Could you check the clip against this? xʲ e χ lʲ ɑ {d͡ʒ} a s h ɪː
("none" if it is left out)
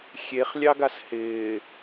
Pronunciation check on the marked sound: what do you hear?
ɡ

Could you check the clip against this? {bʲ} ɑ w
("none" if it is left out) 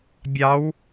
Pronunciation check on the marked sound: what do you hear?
bʲ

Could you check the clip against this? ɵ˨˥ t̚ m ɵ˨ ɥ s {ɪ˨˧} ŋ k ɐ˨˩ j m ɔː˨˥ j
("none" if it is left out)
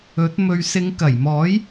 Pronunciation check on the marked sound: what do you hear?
ɪ˨˧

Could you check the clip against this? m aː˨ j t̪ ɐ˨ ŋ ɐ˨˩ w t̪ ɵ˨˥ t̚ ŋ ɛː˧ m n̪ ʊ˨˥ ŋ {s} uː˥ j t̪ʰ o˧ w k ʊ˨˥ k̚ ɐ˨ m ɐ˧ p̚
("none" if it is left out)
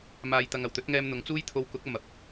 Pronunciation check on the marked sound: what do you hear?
t͡s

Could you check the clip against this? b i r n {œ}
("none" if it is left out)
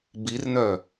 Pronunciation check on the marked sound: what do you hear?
œ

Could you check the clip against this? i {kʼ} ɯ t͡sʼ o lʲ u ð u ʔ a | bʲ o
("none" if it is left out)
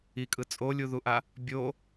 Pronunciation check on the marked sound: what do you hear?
kʼ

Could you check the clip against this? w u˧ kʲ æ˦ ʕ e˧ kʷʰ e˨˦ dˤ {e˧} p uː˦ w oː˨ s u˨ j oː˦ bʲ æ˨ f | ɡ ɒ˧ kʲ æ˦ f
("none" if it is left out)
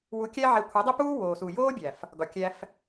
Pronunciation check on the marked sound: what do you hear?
e˦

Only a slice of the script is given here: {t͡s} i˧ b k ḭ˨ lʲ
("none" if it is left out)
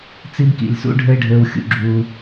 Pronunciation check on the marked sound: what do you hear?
t͡s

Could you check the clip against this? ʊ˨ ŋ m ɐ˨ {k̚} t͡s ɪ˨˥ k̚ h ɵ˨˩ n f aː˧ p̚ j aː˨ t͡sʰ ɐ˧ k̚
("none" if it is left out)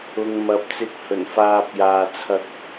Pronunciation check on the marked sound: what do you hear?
p̚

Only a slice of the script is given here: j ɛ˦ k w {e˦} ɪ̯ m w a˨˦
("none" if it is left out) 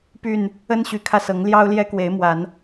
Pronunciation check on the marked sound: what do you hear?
e˨˦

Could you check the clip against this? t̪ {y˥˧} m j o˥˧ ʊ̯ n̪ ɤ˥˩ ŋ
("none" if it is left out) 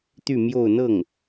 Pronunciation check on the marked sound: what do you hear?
y˥˧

